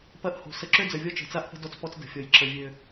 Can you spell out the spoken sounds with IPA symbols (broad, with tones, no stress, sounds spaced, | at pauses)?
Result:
p ɐ˦ ʔ h o̤˨ s ə˨ ǁ ø˦ d͡z ə˨ vʲ ɔ˦ t͡ʃ ə̤˨ t͡s a˦ ʔ p ə̤˦ d ɔ˦ t͡s p ɔ˦ t͡s d ə̤˨ fʲ ɔ˨ j ǁ ə˨ vʲ ø˨